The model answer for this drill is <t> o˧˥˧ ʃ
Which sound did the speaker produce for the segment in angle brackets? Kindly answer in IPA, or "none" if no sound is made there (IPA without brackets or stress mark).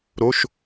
ɾ